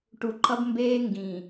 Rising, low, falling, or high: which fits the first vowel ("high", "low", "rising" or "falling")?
low